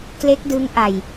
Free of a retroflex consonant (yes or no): yes